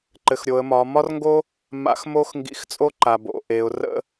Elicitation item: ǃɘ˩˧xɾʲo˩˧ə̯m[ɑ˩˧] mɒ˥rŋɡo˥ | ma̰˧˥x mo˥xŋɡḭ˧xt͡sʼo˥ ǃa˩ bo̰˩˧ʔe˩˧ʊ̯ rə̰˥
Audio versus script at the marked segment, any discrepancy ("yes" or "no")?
yes